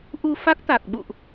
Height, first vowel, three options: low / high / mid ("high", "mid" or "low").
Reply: high